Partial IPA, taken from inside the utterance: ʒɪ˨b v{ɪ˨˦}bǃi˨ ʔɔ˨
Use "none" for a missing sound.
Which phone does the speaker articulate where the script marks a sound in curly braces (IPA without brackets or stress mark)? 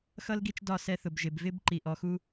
ɪ˦